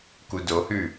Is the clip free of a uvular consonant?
yes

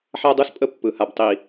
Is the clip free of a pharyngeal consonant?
no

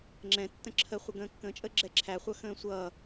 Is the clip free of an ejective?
no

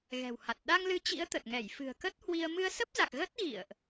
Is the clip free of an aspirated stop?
yes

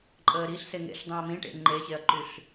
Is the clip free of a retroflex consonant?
no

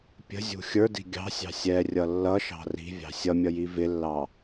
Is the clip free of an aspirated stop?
yes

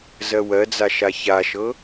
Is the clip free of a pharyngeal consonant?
yes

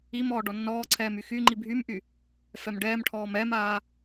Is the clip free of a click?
no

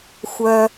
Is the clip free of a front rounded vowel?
no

